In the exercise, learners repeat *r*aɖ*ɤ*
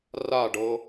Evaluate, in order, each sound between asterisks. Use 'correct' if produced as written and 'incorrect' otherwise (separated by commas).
correct, correct